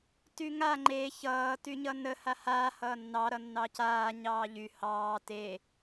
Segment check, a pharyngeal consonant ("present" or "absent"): absent